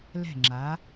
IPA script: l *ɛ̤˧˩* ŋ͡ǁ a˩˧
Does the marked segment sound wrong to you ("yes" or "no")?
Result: no